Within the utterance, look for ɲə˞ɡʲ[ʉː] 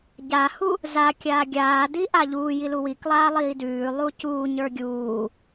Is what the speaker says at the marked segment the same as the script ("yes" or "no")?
no